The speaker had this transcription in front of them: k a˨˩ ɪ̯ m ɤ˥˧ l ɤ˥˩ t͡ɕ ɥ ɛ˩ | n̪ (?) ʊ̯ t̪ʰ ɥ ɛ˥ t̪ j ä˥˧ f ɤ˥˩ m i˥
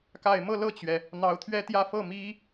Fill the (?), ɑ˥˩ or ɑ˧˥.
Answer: ɑ˧˥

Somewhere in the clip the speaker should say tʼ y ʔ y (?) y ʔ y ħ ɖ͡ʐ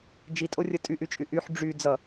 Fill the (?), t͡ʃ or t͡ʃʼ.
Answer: t͡ʃʼ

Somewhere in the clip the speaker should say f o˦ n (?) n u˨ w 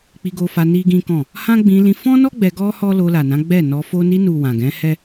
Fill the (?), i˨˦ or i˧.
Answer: i˧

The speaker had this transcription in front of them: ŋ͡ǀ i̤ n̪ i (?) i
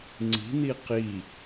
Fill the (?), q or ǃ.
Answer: q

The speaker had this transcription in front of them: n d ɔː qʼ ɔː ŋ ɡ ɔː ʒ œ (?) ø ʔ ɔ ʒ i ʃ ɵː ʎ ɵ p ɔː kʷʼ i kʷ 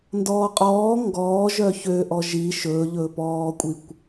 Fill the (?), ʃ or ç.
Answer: ç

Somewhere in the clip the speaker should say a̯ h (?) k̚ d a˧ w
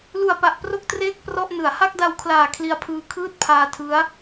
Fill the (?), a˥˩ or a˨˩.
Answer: a˥˩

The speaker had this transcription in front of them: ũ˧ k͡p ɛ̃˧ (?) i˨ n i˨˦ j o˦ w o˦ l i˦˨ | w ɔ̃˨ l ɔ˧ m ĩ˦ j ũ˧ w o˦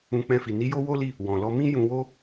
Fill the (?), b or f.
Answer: f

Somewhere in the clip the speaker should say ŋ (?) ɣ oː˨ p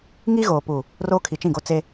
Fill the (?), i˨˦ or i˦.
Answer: i˦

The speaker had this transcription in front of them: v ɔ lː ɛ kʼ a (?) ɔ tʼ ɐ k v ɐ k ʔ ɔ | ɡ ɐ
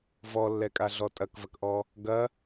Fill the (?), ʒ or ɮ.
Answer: ɮ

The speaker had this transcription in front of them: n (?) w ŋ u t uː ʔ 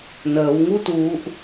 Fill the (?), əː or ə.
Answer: əː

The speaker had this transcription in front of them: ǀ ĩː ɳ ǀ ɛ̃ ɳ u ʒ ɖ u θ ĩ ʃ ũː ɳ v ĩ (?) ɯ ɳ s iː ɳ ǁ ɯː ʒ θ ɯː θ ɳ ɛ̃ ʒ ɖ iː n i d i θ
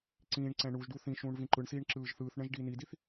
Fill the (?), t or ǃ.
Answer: ǃ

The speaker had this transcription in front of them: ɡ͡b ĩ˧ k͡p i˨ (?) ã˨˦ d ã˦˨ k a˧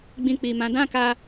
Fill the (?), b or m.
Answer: m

